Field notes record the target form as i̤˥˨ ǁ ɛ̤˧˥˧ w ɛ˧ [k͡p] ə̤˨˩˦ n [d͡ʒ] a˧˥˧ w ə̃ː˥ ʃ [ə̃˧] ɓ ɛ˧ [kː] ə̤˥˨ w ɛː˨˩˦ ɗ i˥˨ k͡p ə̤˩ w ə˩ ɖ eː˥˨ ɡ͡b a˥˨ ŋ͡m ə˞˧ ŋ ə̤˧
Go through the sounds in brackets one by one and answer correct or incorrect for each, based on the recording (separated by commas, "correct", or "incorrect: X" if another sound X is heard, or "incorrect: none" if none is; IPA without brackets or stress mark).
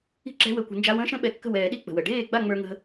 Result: incorrect: kʷ, correct, incorrect: ə̃˥, correct